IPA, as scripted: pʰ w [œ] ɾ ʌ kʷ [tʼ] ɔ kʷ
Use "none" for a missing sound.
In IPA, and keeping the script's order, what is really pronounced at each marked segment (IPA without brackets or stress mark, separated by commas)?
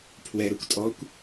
ɛ, tʼ